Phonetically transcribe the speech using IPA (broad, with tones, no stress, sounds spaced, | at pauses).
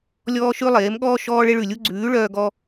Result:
lʲ ɔː˦ ʃ ʉ˦ lˠ eː˨˦ m ɠ ɔː˦ ʃ ɔː˦ ɭ e˦ ɭ ʉ˨ lʲ u˦ ɡ͡ǀ ʉː˨˦ ɭ œː˦ ɡ ɔ˦